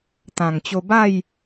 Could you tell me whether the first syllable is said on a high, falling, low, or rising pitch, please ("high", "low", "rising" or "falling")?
low